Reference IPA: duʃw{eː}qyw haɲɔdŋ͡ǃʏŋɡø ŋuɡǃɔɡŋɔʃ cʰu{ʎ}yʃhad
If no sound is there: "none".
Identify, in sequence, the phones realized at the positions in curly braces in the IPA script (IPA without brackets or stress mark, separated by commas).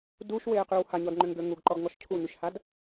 eː, ɲ